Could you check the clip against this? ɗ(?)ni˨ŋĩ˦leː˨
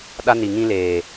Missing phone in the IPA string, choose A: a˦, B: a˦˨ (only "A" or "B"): A